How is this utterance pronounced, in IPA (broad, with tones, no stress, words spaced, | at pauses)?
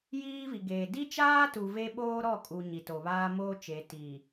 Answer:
jiː˦vi˨ɡeː˨ di˦t͡ʃaː˦tu˨ ve˦ɓoː˦ɾɔ˦˨kʼu˨ ɲi˨to˨βaː˦moː˦ t͡ʃe˨tiː˨